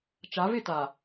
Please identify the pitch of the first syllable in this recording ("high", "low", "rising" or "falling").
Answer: rising